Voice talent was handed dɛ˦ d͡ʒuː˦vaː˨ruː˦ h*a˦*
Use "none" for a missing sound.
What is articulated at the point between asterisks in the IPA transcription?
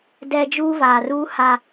a˦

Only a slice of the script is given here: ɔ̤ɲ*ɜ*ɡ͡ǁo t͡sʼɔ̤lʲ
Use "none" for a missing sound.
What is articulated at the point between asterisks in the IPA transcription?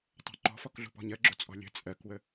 ɜ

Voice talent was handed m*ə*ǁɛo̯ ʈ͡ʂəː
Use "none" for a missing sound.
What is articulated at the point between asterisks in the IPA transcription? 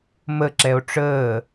ə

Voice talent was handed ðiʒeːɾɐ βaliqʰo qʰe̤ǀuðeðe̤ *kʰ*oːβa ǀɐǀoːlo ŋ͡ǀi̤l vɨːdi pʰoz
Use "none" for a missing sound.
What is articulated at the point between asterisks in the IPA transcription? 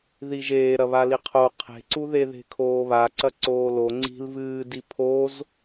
kʰ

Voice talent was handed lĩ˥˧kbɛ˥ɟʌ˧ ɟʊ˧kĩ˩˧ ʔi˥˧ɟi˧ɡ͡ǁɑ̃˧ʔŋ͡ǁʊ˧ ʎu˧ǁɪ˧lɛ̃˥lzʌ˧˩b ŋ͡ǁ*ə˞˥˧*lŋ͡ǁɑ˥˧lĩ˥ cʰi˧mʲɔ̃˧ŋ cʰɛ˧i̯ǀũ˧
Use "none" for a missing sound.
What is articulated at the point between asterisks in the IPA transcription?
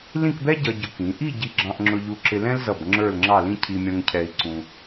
ə˞˥˧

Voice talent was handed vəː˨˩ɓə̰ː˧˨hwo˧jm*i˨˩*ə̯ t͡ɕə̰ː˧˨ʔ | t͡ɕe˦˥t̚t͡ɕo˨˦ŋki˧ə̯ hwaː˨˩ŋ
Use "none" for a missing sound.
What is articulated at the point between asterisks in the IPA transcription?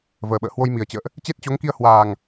i˨˩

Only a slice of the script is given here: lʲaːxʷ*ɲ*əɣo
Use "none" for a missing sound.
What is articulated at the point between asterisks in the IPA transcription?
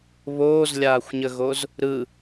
ɲ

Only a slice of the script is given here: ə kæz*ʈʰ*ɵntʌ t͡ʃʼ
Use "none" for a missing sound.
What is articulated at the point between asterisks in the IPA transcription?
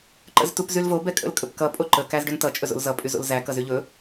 ɖ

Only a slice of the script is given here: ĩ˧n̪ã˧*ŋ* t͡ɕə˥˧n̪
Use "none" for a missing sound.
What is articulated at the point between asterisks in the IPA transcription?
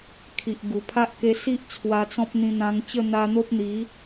ŋ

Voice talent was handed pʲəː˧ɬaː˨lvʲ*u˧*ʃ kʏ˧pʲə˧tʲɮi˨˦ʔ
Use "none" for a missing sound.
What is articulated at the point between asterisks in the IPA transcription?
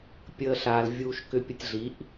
uː˧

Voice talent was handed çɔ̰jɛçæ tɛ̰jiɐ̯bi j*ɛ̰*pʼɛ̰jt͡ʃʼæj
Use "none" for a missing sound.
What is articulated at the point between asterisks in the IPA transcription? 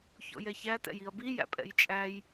æ̰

